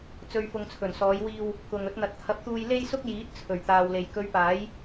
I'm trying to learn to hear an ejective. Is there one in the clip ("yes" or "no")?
no